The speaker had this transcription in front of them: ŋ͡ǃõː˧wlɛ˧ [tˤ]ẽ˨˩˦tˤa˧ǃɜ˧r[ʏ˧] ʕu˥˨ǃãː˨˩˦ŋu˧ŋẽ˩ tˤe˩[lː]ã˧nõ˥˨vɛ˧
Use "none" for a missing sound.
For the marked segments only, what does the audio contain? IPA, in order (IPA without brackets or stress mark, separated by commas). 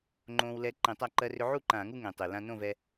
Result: ǃ, ʏ˧, l